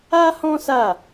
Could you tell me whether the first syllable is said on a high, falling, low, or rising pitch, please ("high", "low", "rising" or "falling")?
high